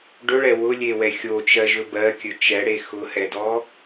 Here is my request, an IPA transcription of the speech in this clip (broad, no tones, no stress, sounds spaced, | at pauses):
ɖ ɵ ɭ ɛ w ʊ lʲ e w ɛ xʲ o t͡ʃ ɜ ʒ ɵ b ɜ kʲ ɵ t͡ʃ ɛ ɽ e x ʊ h ɛ d ɔ